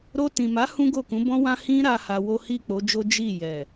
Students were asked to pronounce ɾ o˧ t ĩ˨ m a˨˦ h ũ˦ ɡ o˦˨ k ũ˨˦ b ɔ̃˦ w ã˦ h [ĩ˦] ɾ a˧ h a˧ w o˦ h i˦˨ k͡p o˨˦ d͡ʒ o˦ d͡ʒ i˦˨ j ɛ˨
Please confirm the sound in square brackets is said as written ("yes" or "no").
yes